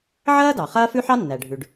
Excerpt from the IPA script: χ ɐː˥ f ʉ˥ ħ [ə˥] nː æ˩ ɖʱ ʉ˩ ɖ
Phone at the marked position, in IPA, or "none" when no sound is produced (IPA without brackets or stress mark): ɑ˥